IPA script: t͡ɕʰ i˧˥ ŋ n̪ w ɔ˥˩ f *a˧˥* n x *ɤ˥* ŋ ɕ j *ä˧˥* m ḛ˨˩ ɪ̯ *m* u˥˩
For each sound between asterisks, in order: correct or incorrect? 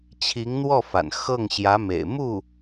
incorrect: a̰˨˩, incorrect: ɤ˥˩, correct, correct

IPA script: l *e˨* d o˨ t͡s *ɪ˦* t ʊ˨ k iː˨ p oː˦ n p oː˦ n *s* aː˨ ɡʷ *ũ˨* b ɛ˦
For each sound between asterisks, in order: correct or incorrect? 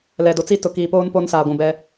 incorrect: ɛ˨, incorrect: i˦, correct, correct

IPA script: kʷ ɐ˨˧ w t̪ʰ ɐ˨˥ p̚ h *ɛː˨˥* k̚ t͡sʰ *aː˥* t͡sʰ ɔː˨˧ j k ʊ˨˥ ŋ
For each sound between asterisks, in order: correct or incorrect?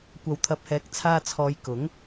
correct, incorrect: aː˧

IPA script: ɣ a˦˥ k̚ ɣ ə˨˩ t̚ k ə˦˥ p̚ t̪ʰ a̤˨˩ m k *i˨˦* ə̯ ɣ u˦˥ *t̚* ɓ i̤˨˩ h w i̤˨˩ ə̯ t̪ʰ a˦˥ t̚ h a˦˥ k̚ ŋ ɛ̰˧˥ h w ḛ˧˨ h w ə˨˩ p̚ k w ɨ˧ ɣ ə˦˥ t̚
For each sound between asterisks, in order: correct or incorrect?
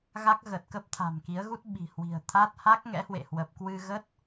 correct, correct

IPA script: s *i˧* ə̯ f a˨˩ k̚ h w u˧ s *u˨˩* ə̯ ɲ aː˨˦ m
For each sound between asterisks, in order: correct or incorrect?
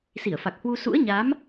incorrect: i˧˩, incorrect: ṵ˧˥

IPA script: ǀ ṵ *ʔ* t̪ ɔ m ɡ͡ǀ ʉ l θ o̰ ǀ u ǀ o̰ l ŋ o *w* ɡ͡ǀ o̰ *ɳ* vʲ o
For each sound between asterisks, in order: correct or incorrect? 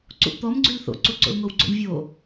correct, correct, correct

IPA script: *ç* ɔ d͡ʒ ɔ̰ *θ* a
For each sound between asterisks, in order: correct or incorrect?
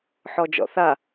incorrect: ħ, correct

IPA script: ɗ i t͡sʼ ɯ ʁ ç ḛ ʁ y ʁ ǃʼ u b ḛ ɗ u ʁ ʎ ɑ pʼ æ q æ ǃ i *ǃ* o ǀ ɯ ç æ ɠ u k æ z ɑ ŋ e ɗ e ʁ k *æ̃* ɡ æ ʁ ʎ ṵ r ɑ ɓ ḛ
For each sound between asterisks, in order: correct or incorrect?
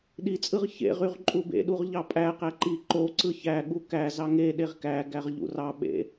correct, incorrect: æ

